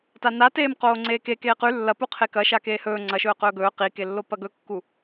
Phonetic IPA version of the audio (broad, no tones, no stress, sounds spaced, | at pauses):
t a n a t eː m q oː ŋ͡ǀ eː k e k eː q ʉ lː ɐ p u qʰ e k ɐ ʃ a k eː h ɵː ŋ͡ǀ ɐ ʃ ɵː q ɵː ɡ ɵː q i k e lː o p ɐ ɡ ɵ kː u